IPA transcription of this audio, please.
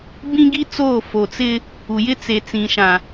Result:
b ĩ˦ ɡ i˦ t͡s oː˦˨ f o˨ t͡s ɪ˦ | u˨ j ɪ˦ t͡s e˨ t͡s ĩ˨ ʃ ã˨

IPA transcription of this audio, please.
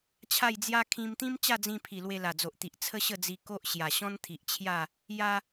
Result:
t͡ɕʰ a˥˧ j d͡z j a˦ kʰ ĩ˧ m t̪ ĩ˦ m t͡ɕ a˥˧ d͡z ĩ˧ pʰ i˨˩ l w e˧ l a˨˩ d͡z o˨ ʔ t̪ i˨ ʔ t͡sʰ ə˦ ɕ ə˥˧ d͡z i˧ k o˦ ʔ ɕ j a˨˩ ɕ ɔ̃˦ n t̪ʰ i˨ ʔ t͡ɕʰ j a˥˧ | j a˦

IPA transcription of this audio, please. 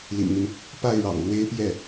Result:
l ḭ˨˩ ŋ n̪ y˦ n | p a˥˩ ɪ̯ ɻ ɑ̰˨˩ ŋ l w e˥ ɪ̯ p j ɛ˥˩

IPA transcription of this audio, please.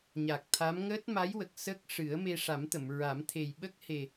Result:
ɲ a˨˩ k̚ t̪ʰ a˧˥ m ŋ əː˦˥ t̚ m a˧˥ j w ə˨˩ k̚ s ə˦˥ k̚ ʂ ɨ˨˩˦ ə̯ m e˧ ʂ a˨˩˦ m t̪ ə˨˩˨ m ɹ a˨˩˦ m t̪ʰ e˨˩ j ɓ ə˦˥ k̚ h e˨˩

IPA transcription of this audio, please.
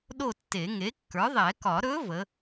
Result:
ɗ o˥˨ tː e˨˩˦ ŋ e˩˥ kː ə˞˩˥ ðˤ ɛ˨˩˦ k ɒ˨˩˦ ɾ ɵ˧˥ v ə˩˥

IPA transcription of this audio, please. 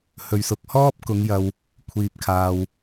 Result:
h ɵ˨ ɥ s ʊ˨ k̚ h ɔː˥ p̚ k ʊ˨˧ ŋ j ɐ˨ w | kʷʰ iː˨ p̚ kʰ aː˨ w

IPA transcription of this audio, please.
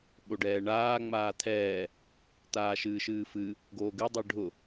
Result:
ɓ o ɖ ɛː ɳ aː ŋ͡m aː t̪ʰ ɛː | t̪ aː ʃ ɨː ʃ ɨː f ɨ | ɡ oː ɡ ɨ dˤ ɨ ɖʱ ʊ

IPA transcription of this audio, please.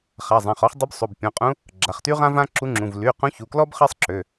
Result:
χ a˩˧˩ zˤ ã˩˧˩ χ ɔ˧˥ χ dˤ u˧˥ b sˤ o˩˧˩ b pʲ ɔ̃˩˧˩ qʼ ũ˧˥ | ɡ͡ǁ a˩˧˩ χ t y˥ ʁ ã˥ v ã˥ ǁ u˧˥ ŋ͡ǁ ũ˩˧˩ v l y˩˧˩ q ũ˧˥ ç u˩˧˩ k l ɔ˥ b χ ɛ˥ sˤ ǁ ø˩˧˩

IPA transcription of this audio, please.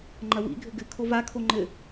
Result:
ŋ͡ǃ ɐ w ḭ ɡʱ ɘ ɡ ɘ kʰ o v a kʰ o ŋ͡ǃ ɘ

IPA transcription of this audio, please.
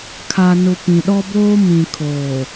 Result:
kʰ a˨ n ʊ˨ p ĩ˨ ɗ ɔ˦ b oː˦ m ĩ˨ kʰ oː˨

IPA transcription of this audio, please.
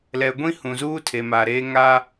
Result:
l ɛ˨ ɡʷ ĩ˦ h ũ˨ z uː˦ tʰ e˨ m aː˨ ɾ eː˦ ŋ a˦

